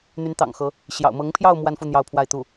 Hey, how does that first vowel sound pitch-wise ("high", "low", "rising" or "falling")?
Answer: rising